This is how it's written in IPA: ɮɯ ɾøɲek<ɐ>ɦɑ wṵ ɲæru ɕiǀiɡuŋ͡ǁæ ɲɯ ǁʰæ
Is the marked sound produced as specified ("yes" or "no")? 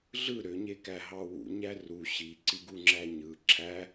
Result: no